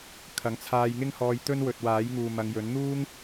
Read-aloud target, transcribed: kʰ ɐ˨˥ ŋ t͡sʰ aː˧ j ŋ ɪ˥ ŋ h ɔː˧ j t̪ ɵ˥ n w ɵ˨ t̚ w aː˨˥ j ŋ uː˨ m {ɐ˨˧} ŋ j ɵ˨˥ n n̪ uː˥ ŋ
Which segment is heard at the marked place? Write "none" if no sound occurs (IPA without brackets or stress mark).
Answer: ɐ˨˧